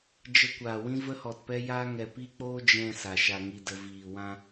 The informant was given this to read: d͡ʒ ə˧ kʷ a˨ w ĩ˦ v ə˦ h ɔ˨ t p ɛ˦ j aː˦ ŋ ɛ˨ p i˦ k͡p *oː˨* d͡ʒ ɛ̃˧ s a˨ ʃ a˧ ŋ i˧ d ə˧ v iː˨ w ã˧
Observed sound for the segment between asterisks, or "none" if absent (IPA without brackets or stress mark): oː˦